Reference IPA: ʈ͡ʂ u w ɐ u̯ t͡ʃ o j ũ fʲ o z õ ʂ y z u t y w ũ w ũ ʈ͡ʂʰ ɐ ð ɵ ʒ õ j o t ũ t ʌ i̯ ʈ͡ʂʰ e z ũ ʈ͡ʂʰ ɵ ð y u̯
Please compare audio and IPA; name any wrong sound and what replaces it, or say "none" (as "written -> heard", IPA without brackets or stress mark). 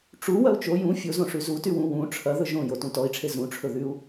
ʌ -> ɔ